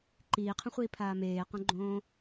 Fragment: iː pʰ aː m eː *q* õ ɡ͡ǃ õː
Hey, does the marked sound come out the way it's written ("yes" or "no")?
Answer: yes